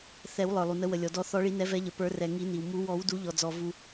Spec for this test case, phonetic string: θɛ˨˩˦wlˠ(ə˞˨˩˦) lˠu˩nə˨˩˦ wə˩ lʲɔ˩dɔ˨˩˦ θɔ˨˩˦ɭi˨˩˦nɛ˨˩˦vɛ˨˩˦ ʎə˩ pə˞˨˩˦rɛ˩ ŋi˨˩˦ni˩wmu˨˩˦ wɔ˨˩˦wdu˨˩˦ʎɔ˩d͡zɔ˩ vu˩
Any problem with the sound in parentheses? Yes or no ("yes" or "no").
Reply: yes